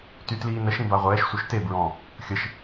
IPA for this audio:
tytliːnəʃ ĩbaʁʷɛːʃ sʷœʃte bɹɔ̃ | xʲəʃ

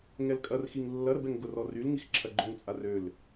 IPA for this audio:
ŋɛlkʼɐrxiŋ lːɐɾəbɛŋ ɡʊrɔ rylŋix ǁʰɐɡ͡ǃʊŋt͡sʼar øl

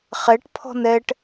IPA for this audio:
χɛʈ pʰɔ̤nɛʈ

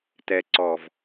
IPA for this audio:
tɛ˨ǀɔ˨v

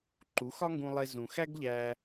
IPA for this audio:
ǃu˨˦xɒ˦ŋɡũ˧lˠe˧ zũ˨xæ˦ɡʎæ˧

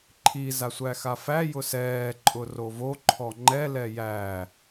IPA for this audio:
ǃʰi zasʷæxafæ jʊsɛː ǃʼʊrovo ǃʰɔŋ͡ǃɛ lɛjæ

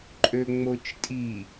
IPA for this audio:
ǃʼøŋ͡mot͡ʃtʼi

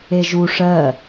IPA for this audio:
eʒu ʂɜ

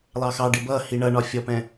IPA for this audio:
lˠɑxɑɖɪ bʌ hiɳʌɳɒ fʲɔpɛ̃

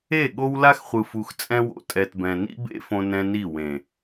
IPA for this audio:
e˦˨ɠo˦w la˦xχʷɯ˨fu˨x t͡sʼɛ̃˦wo̰˨ tʼɛ˨tbɛ̃˨nḭ˦bḛ˦ fõ˦nɛ̃˦ni˦˨ wẽ˨

